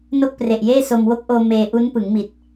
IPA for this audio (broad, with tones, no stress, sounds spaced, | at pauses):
n o˥˩ k̚ p r e˨˩ ʔ j eː˥˩ s o˧ m w o˦˥ k̚ ʔ oː˧ m eː˧ ʔ u˦˥ n p ɯ˩˦ ŋ m i˨˩ t̚